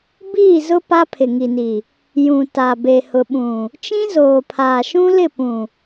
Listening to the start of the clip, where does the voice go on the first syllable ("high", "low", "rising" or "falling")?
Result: falling